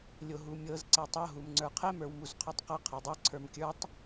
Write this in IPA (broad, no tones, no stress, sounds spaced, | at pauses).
lʲ o ɦ u mʲ ɤ z ǀ ɛ tˤ ɤ ɦ u m ŋ͡ǀ ə˞ qʰ ɛ m ə˞ w m u z qʰ o tˤ q ɤ qʰ ɤ dˤ ɤ ǀʰ ə˞ m kʲ ə˞ tˤ